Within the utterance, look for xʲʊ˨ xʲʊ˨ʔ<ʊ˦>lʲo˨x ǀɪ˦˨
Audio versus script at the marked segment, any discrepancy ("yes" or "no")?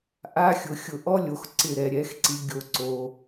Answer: yes